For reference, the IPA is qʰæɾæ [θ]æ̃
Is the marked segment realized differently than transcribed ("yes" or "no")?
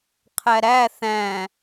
no